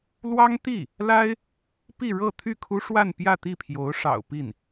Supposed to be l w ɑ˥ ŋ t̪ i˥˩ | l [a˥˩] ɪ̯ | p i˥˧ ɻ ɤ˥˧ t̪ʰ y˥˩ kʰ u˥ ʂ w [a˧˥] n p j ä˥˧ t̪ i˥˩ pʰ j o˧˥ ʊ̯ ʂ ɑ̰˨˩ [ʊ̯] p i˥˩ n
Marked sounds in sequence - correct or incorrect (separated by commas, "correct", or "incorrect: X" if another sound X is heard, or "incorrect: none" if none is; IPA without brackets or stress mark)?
incorrect: a˥, incorrect: a˥˧, correct